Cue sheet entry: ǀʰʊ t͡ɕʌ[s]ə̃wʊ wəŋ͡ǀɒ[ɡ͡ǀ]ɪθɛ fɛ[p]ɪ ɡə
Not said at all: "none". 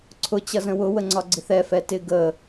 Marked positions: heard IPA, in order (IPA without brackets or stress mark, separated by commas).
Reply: z, ɡ͡ǀ, t